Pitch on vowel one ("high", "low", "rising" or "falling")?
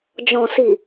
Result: low